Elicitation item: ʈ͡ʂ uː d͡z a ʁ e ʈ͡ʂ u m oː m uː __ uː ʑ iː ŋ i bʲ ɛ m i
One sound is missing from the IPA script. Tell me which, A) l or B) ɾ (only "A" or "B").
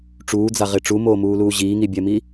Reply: A